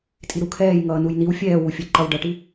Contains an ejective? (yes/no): yes